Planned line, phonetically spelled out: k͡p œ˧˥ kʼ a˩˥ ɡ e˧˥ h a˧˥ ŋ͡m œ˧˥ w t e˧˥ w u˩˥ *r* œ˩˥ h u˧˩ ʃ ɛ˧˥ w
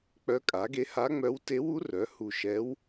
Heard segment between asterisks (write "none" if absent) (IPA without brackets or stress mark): r